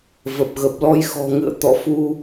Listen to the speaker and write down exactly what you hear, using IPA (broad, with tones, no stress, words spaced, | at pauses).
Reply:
və˨˩p̚ɣə˨˩p̚lɔ˧j xɔ̤˨˩ŋɨ̰˧˨ə̯t̪ɔ̰˧˨fu˧